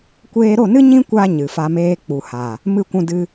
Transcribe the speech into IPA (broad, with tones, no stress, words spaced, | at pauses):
kʷeː˧ɾo˦˨nɨ˦ ɲĩ˦kʷa˧ ɲɨ˨fa˧meː˦ k͡pu˨ha˨ | mɨ˦˨kʷũ˧ dɨ˧